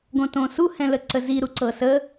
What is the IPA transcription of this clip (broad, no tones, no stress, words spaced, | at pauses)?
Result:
ɡõtõsu hɛ̃ləǀəzi ɾuǀɤsə